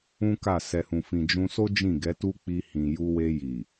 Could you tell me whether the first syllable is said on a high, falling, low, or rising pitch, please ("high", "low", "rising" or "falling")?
high